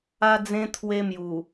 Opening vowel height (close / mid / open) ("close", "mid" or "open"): open